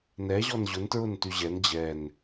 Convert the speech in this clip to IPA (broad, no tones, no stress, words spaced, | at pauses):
nɛʑɔn ʑʊntɹʊnty ʑɛn d͡ʑɛn